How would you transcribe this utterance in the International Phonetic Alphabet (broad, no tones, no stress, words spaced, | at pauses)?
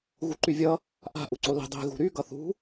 ɣuǃyvʲʌ | ʔa̤ ʔuǀoli̤ dˤi̤ ɣṳɾy ɡʌθṳ